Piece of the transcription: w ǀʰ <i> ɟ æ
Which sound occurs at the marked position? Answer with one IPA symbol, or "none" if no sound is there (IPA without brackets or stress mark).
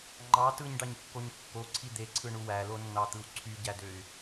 y